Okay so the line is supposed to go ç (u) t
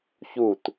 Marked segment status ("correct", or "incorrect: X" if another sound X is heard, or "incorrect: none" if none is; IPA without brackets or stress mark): correct